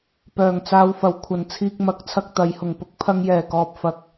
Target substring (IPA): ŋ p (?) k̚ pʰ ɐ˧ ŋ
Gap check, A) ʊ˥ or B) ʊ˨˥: A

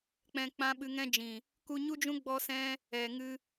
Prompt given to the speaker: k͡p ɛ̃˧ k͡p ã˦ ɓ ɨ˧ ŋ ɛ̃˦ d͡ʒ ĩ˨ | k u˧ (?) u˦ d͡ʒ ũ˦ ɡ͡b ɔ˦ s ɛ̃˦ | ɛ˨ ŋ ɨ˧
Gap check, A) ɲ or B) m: A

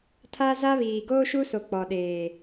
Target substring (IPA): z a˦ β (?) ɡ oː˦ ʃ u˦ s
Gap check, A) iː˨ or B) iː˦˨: A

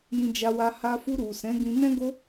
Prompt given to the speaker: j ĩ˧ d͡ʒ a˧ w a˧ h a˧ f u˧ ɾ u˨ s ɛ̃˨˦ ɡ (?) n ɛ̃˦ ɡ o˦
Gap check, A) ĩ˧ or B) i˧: A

